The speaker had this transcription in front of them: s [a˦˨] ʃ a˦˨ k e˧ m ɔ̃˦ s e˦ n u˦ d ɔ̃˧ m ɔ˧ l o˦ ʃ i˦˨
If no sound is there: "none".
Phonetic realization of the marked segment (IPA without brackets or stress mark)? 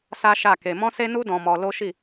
a˦